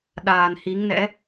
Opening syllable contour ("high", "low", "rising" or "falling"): low